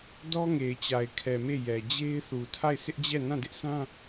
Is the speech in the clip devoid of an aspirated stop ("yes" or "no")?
no